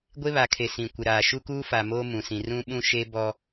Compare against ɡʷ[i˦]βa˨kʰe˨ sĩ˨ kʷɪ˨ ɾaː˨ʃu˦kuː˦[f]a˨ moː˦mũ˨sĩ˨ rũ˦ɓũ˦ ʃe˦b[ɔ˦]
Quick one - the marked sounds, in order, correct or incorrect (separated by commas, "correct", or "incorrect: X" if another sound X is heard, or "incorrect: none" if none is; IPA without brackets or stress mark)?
incorrect: e˦, correct, correct